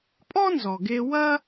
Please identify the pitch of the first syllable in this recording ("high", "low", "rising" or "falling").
high